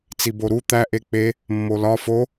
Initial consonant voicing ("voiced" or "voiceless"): voiceless